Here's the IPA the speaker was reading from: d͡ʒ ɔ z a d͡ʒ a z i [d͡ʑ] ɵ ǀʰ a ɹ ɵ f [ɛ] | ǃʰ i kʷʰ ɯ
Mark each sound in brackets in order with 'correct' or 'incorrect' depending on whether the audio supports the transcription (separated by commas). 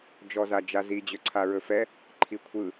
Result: correct, correct